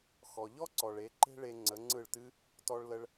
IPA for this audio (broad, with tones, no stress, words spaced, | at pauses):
xɔ˨ʎɔ˦ǀɔ˨ɭe˨˦ ǃe̤˦ɭe˧ ŋ͡ǀə˨˦ŋ͡ǀɯ˦˨ɭtɨ˦ | tɔ˧ɭlə˧ɭ